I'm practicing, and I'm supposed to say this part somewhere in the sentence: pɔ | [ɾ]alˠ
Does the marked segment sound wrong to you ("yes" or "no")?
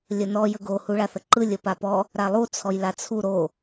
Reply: no